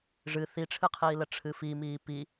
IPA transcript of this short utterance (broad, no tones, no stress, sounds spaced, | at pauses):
ʐ ɨ θ i ʈ͡ʂʰ ɨ qʰ iː l ə ʈ͡ʂʰ ɨ f i m iː p i